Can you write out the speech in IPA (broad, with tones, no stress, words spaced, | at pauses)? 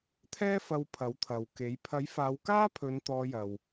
t̪ʰɛː˥fɐ˧w pʰɐ˨˥wt̪ʰɐ˨wke˨˥j pʰɐ˨˥jfaː˨˧wkaː˥pʰɵ˨˧n t̪ɔː˧jɐ˨w